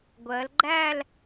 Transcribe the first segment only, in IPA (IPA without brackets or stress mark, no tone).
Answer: ɡʷ